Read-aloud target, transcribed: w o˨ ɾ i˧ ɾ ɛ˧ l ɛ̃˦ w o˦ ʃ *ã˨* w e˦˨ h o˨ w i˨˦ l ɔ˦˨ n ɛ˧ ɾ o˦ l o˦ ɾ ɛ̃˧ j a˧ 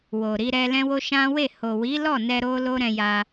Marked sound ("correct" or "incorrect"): incorrect